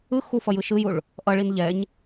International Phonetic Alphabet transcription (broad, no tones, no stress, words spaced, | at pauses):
ɯ xufʌ jɯʃɯjuɭ | ʔʌɭin ʎɛɲ